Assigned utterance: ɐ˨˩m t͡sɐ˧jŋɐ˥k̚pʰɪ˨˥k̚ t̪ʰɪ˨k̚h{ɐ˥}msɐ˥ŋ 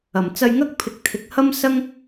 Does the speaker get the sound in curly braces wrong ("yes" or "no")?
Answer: no